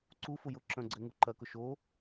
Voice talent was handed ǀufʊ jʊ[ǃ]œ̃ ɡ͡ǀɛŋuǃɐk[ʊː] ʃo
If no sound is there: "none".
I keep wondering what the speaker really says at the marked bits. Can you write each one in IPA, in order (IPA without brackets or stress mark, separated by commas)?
ǁ, ʊ